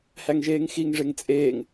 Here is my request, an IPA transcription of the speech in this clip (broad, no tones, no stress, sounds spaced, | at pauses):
h æ ŋ ʒ eː ŋ x i ŋ ʐ e ŋ t͡sʼ eː ŋ